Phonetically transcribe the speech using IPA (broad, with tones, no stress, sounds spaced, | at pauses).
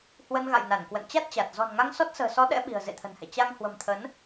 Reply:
h w ə˧ n ɣ a̰˧˨ j n a˧˩ n k w ə̰˧˨ n t͡ɕ a˦˥ t̚ t͡ɕ a˨˩ t̚ z ɔ̤˨˩ n ŋ a˧ ŋ s ɔ˦˥ t̚ s ə̤ː˨˩ s ɔ˨˦ ɗ ɛ̰˧˥ ɓ i̤˨˩ ə̯ z ḛ˧˨ t̪ʰ ə̤˨˩ n h ɛ̰˧˨ t͡ɕ a˧ ŋ h w ə̤˨˩ m t̪ʰ ə˨˦ n